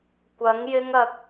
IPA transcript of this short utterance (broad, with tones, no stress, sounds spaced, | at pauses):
kʷ ɐ˨˥ ŋ j ɪ˥ ŋ ɐ˧ k̚